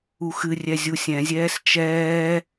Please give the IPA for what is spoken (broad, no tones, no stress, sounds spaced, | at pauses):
u x ɨ rʲ ɛ zʲ u sʲ ɛ̃ zʲ ɛː s t͡ʃ ɛː